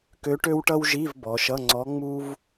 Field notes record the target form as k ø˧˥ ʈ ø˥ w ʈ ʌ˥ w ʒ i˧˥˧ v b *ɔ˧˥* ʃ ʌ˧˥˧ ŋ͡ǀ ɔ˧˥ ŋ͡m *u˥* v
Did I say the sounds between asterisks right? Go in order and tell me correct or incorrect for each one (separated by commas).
incorrect, correct